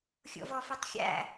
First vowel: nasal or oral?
oral